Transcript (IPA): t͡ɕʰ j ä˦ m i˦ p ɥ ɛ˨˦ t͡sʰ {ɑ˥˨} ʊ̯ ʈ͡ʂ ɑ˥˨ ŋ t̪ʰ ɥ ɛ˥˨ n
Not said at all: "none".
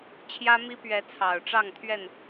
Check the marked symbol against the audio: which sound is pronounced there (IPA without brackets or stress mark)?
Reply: ɑ˨˩